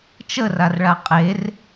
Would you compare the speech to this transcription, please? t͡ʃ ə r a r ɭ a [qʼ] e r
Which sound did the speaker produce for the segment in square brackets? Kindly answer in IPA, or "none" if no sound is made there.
qʼ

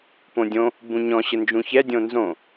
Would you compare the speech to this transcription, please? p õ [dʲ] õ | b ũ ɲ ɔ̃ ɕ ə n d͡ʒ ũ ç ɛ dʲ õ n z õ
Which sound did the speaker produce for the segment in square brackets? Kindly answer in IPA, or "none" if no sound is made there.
dʲ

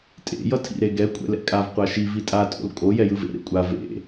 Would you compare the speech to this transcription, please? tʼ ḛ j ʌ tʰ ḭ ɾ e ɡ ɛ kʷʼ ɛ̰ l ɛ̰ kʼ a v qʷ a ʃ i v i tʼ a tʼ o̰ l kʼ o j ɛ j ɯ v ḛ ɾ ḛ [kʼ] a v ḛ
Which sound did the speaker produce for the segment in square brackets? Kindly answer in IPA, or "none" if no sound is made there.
kʷʼ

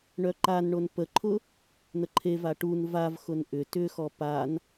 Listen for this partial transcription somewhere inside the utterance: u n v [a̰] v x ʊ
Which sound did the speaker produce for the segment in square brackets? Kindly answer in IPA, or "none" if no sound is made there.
a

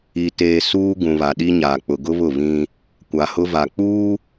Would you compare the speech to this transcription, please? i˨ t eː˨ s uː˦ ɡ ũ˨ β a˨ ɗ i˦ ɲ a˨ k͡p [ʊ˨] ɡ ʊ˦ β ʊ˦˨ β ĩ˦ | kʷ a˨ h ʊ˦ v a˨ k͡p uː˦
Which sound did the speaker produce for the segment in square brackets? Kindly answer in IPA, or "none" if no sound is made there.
ʊ˨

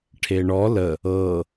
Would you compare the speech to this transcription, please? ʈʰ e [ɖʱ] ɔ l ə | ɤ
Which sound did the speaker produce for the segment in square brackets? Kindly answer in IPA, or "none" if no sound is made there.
ɳ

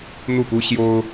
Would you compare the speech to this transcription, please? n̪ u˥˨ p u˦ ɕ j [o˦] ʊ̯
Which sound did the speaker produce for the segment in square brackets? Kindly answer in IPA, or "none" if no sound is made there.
o˦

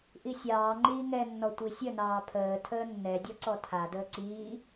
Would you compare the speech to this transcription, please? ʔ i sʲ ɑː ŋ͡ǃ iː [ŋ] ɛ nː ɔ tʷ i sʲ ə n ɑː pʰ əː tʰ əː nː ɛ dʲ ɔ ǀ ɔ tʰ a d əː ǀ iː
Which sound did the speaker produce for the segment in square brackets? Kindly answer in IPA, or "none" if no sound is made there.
ŋ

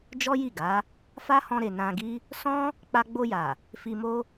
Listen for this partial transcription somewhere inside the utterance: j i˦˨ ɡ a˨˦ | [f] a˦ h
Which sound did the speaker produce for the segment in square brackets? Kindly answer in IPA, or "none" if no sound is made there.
f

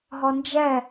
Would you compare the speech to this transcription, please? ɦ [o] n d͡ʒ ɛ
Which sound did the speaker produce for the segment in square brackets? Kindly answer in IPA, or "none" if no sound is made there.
ɔ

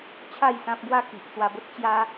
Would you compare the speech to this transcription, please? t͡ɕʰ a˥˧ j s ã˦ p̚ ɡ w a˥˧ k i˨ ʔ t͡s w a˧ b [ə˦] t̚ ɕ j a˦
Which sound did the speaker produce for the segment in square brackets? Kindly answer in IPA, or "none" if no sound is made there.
ə˦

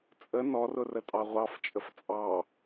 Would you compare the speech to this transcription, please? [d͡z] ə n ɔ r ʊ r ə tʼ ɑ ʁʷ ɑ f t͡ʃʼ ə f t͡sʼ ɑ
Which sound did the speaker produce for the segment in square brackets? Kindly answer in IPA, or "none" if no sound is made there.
t͡sʼ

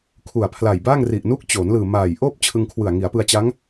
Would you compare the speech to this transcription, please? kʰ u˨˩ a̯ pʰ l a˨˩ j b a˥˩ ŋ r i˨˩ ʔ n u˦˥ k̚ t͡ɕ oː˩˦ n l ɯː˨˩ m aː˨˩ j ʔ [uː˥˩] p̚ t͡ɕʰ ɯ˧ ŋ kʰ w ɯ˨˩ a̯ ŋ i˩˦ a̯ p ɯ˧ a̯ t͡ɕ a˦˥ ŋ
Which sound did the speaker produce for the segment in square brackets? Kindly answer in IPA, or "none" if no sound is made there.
oː˥˩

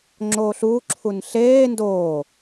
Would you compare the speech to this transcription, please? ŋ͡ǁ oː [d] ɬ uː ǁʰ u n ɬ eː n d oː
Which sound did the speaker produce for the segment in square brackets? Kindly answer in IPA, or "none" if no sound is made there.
none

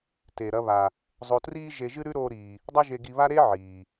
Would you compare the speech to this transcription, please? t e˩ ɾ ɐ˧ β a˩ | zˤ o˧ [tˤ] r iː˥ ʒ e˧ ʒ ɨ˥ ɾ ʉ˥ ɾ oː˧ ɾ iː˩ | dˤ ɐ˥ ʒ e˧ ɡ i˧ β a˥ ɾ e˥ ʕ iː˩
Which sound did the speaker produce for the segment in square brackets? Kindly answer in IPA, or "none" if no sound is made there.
t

